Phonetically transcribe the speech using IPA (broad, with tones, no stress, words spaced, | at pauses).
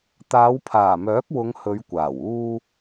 t̪aː˨˧wpʰaː˨˩mœː˨˥k̚wʊ˨˧ŋ hɵ˨˧ɥkʷaː˨˩w uː˧